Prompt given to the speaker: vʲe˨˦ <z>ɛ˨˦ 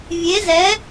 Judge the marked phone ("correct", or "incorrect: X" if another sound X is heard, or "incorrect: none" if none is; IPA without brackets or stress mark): correct